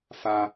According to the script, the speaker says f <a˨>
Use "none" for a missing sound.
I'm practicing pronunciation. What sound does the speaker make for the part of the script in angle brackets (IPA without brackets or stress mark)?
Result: a˨